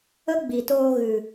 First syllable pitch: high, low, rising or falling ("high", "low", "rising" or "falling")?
high